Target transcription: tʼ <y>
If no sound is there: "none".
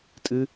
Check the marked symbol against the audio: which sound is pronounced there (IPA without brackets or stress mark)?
ɨ